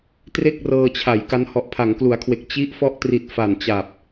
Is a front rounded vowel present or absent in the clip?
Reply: absent